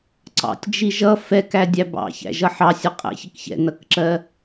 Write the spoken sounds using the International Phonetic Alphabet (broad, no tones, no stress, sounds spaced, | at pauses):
ǀ ɑ̰ tʲ d͡ʒ i ʒ ʌ f ɛ k æ dʲ æ b ɑ̰ ç æ̰ ʒ ʌ ħ ɑ sʲ ə qʼ æ̰ ç ɪ k ç ɛ̰ n ʌ k ǁ ɜ